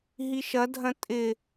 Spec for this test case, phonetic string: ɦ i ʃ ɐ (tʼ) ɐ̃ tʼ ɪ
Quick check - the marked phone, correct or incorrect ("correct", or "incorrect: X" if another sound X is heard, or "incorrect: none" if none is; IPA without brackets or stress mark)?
incorrect: dʱ